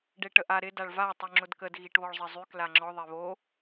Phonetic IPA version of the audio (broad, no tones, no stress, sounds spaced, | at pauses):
ɖ e ʈ ə ʔ a ɾ ɪ d a ɭ v a tˤ y ŋ͡ǁ ʊ d k ə d ɣ i ʈ β ɔ ɭ zˤ ɪ zˤ y k l a ŋ͡ǁ ɔ ðˤ e β o